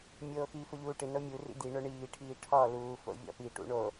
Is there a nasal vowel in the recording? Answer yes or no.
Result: no